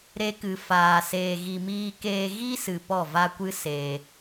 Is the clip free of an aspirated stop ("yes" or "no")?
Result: yes